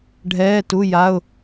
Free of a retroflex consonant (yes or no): no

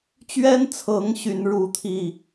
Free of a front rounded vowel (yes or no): no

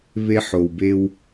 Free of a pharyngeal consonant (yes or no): no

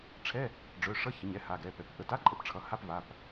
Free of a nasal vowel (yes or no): yes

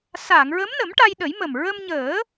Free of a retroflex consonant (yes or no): no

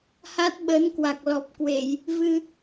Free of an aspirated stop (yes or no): yes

